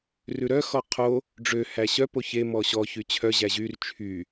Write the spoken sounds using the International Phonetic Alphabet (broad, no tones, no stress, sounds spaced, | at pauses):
r ʉ ɾ œ x ɔ qʰ o | ɖ͡ʐ ø h æ ɕ œ p o ç e m ɔ ɕ ɔ ç y t͡ɕʰ œ ʑ æ ʑ y r t͡ʃʰ y